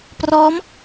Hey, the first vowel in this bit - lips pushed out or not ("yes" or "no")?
yes